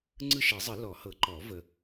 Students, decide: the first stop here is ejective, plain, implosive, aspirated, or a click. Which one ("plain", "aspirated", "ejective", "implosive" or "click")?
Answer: click